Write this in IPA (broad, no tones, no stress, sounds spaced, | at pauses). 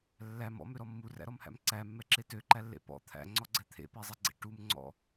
lː æ m ɔ̰ m ø ɾ ɔ mː u r æ̰ ɾ ɔ m h æ̰ m ǀ æ mː ɛ ǁ e t ø ǃ æ lː ḛ p ɔ̰ t̪ʰ æ̰ ŋ͡ǀ ɔ ɡ͡ǀ ɛ t̪ʰ ḛ p ɛ zˤ ɛ ɡ͡ǀ ḛ ʈ u m ŋ͡ǀ ɔ̰